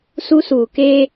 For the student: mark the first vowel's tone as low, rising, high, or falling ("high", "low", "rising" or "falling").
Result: high